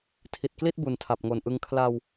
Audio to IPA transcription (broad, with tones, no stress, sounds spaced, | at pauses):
tʰ i˨˩ t̚ k l i˥˩ t̚ b u˨˩ n tʰ a˨˩ p̚ ŋ o˨˩ n ʔ ɯ˧ ŋ kʰ l a˧ w